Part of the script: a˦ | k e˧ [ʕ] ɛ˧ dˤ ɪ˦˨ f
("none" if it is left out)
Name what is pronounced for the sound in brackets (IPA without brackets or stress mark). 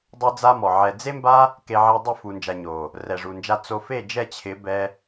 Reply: ʕ